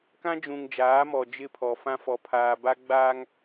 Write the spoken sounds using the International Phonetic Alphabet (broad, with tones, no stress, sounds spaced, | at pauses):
k ã˦ d͡ʒ ũ˨ ŋ d͡ʒ aː˨˦ m ɔ˨ d͡ʒ ɪ˦ pʰ ɔ˨ f ã˦ f ɔ˨ pʰ aː˨ b a˦ ɡ͡b a˦ ŋ